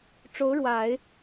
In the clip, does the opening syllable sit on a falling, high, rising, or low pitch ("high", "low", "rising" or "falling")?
rising